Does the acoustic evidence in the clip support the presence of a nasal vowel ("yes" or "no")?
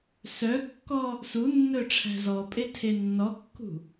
no